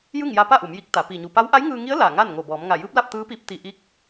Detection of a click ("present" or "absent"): absent